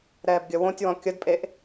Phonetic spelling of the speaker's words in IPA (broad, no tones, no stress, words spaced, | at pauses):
ɾɛːbɡʲəwõtʲwɔ̃ kʲədpʼeʔ